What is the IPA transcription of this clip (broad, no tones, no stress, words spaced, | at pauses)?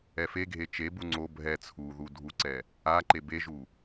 ɛfeɡʱe t͡ʃebu ŋ͡ǀo bʱɛ t͡sʰuðu dʱuǀɛ | a ǃebeʒu